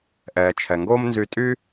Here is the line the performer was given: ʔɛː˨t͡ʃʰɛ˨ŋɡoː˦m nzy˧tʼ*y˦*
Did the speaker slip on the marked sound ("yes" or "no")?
no